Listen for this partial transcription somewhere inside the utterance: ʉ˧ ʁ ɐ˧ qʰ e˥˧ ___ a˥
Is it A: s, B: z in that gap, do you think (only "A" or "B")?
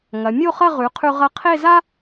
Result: B